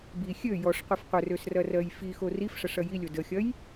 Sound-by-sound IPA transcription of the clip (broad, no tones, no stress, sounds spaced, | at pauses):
b i xʲ ø j ɔ ʂ qʷ i f qʷ ə r ø s r ɐ r ɜ j f i x o r i f ʂ ɐ ʂ ɐ j i lʲ o d ə xʲ ɐ j